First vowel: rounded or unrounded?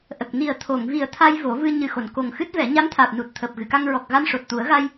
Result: unrounded